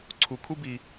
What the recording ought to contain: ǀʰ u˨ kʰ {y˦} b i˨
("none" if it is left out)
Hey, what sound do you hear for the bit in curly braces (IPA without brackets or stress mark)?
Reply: u˦